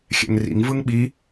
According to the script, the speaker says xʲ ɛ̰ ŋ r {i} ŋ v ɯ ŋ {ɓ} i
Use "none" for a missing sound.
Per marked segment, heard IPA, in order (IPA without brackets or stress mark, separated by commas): ḭ, ɓ